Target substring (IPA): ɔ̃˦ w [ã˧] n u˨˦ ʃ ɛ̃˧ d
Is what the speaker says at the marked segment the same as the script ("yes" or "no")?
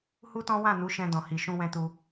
no